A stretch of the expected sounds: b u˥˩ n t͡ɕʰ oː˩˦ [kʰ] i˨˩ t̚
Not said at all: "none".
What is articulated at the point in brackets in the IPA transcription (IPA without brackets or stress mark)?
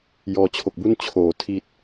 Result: tʰ